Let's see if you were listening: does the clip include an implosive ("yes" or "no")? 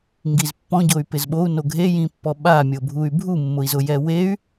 yes